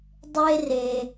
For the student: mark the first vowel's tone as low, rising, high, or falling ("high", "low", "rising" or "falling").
high